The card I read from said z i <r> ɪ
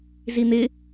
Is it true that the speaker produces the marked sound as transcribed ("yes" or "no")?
no